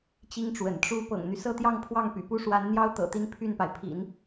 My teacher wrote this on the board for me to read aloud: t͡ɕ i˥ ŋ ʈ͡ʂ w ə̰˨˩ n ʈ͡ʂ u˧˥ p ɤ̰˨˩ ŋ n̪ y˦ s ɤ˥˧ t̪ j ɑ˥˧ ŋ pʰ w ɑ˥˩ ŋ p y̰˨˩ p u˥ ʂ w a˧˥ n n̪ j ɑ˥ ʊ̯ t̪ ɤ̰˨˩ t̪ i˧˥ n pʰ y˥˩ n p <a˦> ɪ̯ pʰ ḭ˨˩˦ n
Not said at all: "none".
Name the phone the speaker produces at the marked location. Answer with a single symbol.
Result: a˩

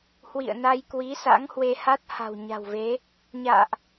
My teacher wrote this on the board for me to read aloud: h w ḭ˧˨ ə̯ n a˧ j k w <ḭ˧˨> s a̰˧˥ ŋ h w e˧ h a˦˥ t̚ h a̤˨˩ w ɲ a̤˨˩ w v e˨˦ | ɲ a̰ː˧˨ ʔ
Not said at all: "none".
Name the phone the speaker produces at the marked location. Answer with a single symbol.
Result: i˨˦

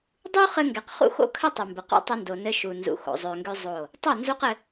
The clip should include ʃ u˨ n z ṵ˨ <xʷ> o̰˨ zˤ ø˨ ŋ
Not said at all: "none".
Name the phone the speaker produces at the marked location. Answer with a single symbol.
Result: x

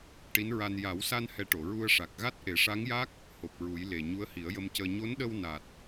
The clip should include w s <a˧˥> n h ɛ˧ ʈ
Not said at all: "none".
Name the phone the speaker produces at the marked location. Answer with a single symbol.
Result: a˧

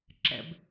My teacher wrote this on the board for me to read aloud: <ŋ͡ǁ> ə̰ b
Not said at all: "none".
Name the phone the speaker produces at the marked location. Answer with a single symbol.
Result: ǁ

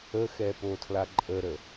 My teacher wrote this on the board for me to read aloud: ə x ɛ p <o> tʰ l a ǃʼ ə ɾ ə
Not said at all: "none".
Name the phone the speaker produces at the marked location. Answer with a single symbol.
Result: o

